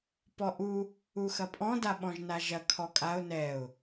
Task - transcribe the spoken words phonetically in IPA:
p ɔ ʔ u | u x ɐ pʼ ɔ̃ d a ɓ ɔ̃ ʒ n a ʒ ɐ kʰ ɔ kʼ a ʊ̯ n ɛ ʊ̯

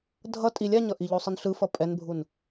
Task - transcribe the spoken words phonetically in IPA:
dʱ ʌ tʼ i lʲ a ɲ ʌ ʔ i ʎ o sˤ ɯ n ɬ ɯ f ʌ pʼ ɛ n bʱ u n

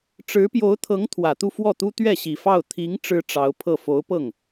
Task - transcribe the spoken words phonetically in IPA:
ʈ͡ʂ ɻ̩˧˥ p j o˧˥ ʊ̯ t̪ʰ ɤ˧˥ ŋ t̪ʰ w ä˨˩ t̪ u˥˧ f w ɔ˥˩ t̪ u˥ t̪ ɥ ɛ˥˩ ɕ i˨˩ f ɑ˥˩ ʊ̯ t̪ʰ i˧˥ ŋ ʈ͡ʂ ɻ̩˥ ʈ͡ʂ ɑ˧˥ ʊ̯ pʰ ɤ˥˩ f o˧˥ ʊ̯ p ɤ˥˩ ŋ

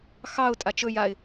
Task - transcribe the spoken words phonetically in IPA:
x ɑ ʊ̯ tʼ a t͡ʃ ɵ j a ɪ̯

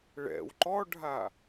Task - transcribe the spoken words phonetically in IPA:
ɭ ɛ̰ w ǃ ɔ ɖʱ a

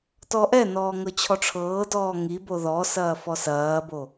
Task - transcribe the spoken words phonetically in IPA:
t ɔ ʔ ɛ n ɔː ŋ ɤ t͡ɕʰ ɔ ʈ͡ʂʰ ɤː d ɔː ŋ i b o ð ɔ s ɐː f ɔ s ɐː b o

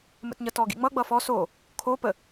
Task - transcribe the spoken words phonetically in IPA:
m ə̰ t ɲ ʌ t ɔ ɡ ḭ ŋ͡m ʌ ɡ͡b ʌ f ɔ s o | kʰ o p ə

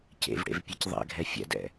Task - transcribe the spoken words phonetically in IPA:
c ḛ v ɽ ḛ v pʲ e c ðˤ ɛ̰ ɡʱ ɛ fʲ ɛ̰ d ɛ̰

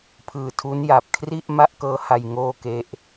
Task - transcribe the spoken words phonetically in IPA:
pʰ ɯː˨˩ tʰ u˦˥ n j a˨˩ p̚ kʰ r i˥˩ ʔ m a˥˩ ʔ k ɤː˦˥ h a˧ j ŋ oː˥˩ k e˦˥ ʔ

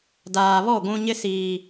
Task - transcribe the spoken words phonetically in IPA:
d aː˨ β ɔ˦˨ ɡʷ ũ˦ ɲ ɪ˦ s iː˨

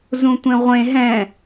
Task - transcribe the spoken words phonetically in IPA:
z ũ tʷ ẽ ʁʷ ẽ ɦ ɛ̃

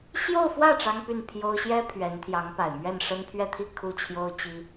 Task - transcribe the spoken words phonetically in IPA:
ɕ j o˥˧ ʊ̯ f w ä˥˩ ʈ͡ʂ ɑ˥ ŋ p y˥˩ n pʰ j o˥ ʊ̯ ɕ j ɛ˥ pʰ ɥ ɛ˧˥ n t̪ʰ j ɑ˧˥ ŋ p a˨˩ ɪ̯ m ɥ ɛ˥˩ n ʂ ə˥ n pʰ ɥ ɛ˥˧ t̪ʰ i˥˧ kʰ u˥˩ t͡ɕʰ j o˥ ʊ̯ t͡ɕ i˥

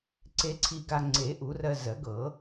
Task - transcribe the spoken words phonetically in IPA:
ǀ e˧ ǀʰ i˧ ɡ a˧ ŋ͡ǀ e˨˩˦ ʔ u˨˩˦ r ɜ˧ z ɜ˨˩˦ ɡ ɤ˨˩˦

